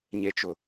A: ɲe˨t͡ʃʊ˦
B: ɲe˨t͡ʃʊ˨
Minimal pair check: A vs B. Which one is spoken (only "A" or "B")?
B